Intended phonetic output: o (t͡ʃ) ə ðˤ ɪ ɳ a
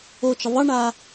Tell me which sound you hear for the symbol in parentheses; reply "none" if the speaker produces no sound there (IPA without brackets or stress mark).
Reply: t͡ʃ